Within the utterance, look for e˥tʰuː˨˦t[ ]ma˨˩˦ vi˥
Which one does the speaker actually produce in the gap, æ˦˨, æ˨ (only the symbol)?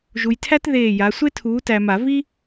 æ˨